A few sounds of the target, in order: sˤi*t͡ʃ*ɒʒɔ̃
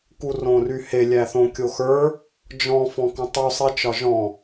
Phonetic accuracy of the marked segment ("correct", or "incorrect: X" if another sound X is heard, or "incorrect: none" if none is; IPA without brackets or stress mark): correct